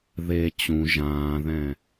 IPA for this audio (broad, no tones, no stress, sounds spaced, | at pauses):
ð e t͡ɕ ũ ʒ ãː ð ɛ̃